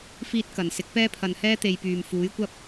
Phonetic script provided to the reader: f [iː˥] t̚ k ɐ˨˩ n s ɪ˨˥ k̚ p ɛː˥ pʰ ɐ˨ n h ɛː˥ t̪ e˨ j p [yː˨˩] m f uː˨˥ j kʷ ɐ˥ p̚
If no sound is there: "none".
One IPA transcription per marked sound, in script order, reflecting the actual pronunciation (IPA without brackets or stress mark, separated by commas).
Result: iː˥, yː˨˩